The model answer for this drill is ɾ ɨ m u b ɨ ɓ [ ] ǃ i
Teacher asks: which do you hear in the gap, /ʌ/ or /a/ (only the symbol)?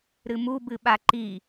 a